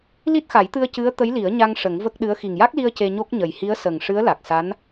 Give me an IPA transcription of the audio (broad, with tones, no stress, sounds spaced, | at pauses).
l i˦˥ t̚ x a˨˩˦ j t̪ ɨ˧ ə̯ c ɨ˧˥ ə̯ t̪ ə˧˥ j l i˨˩˦ ə̯ ɲ a˧ ŋ ʂ ə˨˩˦ ŋ v ə˦˥ k̚ ɗ ɨ˧˥ ə̯ x i˨˩ ŋ j a˦˥ k̚ l i˧ ə̯ c e˧ ɲ o˦˥ k̚ ɲ ə˨˩ j h i˧˥ ə̯ s ə˨˩ ŋ ʂ ɨ˧˥ ə̯ l a˨˩ k̚ s a˧˥ n